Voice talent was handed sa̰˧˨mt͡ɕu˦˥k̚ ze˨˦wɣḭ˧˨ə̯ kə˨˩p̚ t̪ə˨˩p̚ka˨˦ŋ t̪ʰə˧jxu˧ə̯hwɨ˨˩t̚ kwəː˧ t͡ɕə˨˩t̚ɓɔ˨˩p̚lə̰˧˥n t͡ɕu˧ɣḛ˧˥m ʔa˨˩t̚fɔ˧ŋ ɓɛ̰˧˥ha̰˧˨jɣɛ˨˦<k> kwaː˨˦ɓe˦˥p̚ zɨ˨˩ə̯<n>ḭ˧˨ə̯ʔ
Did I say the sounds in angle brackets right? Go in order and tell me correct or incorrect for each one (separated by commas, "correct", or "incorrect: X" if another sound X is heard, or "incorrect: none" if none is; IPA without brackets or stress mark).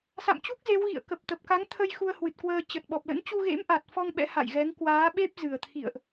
incorrect: ŋ, incorrect: t̪ʰ